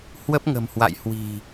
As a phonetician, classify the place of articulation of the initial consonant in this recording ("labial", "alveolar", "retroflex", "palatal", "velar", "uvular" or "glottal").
glottal